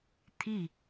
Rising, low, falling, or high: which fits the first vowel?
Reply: falling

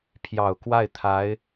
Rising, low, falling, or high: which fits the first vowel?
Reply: low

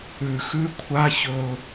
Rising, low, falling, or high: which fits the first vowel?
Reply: low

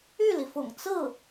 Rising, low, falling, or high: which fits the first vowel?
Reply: falling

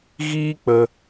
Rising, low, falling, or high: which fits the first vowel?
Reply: high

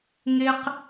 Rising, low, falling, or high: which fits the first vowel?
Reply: high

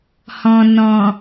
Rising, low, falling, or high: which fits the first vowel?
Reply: low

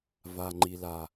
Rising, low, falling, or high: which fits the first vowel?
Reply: low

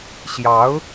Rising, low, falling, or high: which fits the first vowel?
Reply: rising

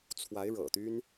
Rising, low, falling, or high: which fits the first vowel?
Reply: rising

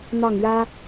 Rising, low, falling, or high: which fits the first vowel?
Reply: falling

